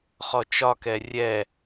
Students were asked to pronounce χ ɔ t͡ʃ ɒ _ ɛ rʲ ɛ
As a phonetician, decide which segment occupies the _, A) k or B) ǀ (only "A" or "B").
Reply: A